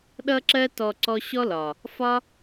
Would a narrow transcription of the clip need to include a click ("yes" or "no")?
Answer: yes